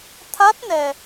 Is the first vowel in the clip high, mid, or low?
low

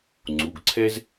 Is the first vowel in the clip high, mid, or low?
high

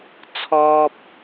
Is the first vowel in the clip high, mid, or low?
mid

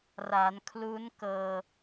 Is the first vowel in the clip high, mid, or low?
low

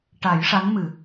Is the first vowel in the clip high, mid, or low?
low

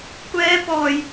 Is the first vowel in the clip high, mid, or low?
mid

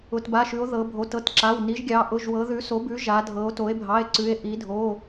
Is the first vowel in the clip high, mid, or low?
high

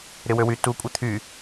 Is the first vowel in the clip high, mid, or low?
high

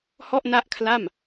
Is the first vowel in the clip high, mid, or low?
mid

